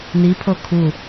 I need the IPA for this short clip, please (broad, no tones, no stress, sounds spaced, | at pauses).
n i pʰ o kʰ u